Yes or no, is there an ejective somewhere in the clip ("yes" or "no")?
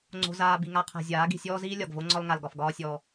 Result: no